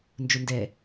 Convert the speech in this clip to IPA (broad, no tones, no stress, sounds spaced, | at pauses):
n d͡ʒ ʊ n d ɛ